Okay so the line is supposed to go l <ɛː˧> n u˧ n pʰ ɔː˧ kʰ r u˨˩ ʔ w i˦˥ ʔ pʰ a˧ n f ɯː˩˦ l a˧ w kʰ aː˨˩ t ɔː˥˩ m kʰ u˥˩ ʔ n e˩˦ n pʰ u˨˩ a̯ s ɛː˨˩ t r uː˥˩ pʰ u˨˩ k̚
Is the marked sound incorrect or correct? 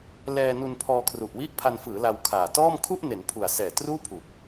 correct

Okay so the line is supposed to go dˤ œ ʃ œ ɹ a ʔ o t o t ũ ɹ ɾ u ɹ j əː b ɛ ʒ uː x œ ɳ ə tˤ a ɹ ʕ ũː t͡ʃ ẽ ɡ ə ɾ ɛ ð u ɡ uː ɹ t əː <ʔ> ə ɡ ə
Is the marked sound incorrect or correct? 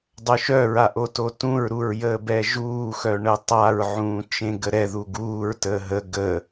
incorrect: ɦ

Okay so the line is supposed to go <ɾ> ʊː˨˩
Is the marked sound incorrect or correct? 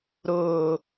correct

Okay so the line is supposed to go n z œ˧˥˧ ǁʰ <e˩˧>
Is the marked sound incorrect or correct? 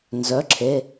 incorrect: e˧˥˧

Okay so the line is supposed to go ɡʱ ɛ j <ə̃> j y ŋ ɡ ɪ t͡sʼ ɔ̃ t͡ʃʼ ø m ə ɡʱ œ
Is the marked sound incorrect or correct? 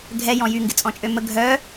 incorrect: ɔ̃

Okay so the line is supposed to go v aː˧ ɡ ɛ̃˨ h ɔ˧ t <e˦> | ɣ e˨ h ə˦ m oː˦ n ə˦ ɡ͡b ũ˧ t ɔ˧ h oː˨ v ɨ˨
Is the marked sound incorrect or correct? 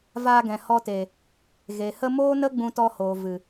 incorrect: e˨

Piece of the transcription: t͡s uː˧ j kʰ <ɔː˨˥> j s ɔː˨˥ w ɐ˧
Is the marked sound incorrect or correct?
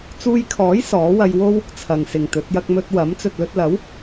correct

